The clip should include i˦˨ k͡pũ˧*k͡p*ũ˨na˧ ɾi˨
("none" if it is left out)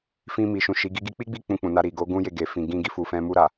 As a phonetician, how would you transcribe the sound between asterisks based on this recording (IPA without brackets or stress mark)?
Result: k͡p